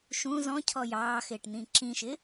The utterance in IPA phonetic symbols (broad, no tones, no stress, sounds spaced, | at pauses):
ʃ ũ z ɔ̃ cʰ ɔ j ɑː x ɪː ʈ n̪ ĩ ǁ ĩ ʃ ɪ